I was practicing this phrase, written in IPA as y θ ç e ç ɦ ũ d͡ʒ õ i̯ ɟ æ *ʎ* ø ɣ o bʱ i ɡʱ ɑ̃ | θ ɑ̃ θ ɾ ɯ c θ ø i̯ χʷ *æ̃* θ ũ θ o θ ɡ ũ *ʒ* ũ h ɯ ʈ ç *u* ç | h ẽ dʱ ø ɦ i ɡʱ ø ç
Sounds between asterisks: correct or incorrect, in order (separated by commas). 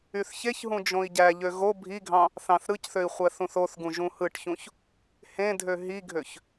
correct, incorrect, correct, incorrect